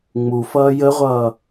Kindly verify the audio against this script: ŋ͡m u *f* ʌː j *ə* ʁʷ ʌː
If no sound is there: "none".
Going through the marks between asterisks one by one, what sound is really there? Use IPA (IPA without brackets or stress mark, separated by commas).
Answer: f, ə